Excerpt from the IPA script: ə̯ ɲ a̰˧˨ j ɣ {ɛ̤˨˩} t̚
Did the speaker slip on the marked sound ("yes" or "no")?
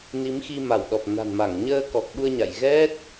yes